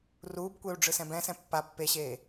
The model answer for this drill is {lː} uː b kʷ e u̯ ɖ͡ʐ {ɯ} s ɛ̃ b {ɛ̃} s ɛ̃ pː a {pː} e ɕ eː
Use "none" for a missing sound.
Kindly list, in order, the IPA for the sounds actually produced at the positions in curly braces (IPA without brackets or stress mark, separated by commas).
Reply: r, ɯ, ɛ̃, pː